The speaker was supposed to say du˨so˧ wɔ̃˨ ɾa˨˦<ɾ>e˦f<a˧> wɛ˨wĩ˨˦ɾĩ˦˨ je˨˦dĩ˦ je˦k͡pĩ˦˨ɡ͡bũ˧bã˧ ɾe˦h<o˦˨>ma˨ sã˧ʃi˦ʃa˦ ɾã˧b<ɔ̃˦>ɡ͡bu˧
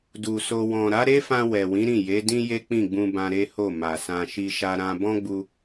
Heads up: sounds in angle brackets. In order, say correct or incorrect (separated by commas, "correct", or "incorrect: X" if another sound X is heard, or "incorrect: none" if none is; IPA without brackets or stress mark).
correct, incorrect: ã˧, correct, correct